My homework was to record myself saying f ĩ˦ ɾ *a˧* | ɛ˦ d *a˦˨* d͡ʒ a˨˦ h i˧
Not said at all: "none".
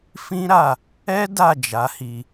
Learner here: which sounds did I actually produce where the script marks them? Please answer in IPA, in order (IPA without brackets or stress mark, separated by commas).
a˦˨, a˦˨